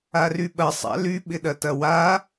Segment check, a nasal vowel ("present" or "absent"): absent